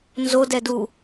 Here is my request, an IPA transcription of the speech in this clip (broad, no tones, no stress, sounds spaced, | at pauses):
n z o d ɛ d u